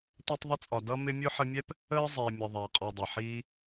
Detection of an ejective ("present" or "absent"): present